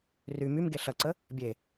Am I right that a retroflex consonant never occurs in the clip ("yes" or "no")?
yes